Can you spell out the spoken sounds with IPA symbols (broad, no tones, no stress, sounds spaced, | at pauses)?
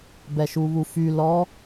b ɛ ʃ u β u f y l ɔ